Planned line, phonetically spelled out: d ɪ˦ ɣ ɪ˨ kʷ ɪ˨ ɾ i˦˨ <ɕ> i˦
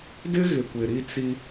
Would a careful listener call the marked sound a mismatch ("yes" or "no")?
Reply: yes